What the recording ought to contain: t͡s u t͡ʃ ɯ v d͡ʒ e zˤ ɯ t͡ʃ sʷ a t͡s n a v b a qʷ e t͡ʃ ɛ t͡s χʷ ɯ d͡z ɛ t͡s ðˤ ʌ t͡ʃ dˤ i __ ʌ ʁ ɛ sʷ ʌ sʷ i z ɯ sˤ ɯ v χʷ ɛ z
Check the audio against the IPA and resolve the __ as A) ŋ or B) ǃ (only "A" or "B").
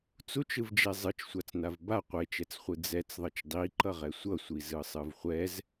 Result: B